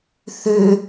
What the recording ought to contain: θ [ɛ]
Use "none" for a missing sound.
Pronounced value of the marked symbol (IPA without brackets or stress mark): ø